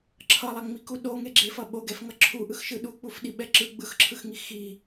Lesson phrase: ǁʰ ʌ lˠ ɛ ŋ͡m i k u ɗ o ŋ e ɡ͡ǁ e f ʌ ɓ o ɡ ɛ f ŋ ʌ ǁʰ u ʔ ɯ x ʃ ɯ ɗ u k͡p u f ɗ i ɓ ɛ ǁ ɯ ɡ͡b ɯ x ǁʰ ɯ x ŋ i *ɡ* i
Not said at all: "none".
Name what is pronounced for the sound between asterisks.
x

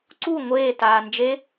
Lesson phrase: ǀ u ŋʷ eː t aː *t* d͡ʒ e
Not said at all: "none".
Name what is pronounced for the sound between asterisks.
n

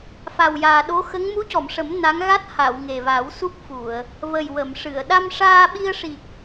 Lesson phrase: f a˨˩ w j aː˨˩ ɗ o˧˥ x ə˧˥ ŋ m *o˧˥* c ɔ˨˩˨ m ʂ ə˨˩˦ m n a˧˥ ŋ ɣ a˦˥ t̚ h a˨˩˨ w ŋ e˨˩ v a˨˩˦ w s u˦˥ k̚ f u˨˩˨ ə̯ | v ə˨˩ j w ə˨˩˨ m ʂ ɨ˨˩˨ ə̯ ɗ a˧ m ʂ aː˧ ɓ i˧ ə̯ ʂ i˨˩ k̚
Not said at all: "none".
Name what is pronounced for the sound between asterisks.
u˧˥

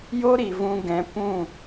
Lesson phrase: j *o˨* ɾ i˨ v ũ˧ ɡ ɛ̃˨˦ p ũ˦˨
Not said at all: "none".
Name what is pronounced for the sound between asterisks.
o˦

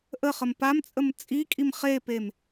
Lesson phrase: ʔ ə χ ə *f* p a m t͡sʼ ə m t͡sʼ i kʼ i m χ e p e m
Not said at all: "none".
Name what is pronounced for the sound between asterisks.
m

